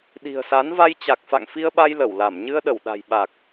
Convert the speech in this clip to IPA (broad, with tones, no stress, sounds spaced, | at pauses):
ɗ i̤˨˩ ə̯ s a˨˦ n v a˧ j t͡ɕ a˨˩ k̚ f a̰˧˨ ŋ f i˧ ə̯ ɓ a˧ j l ə˧˩ w l a˧˩ m ɲ ɨ˧ ə̯ ɗ ə˧˩ w ɗ a̤˨˩ j ɓ a˨˩ k̚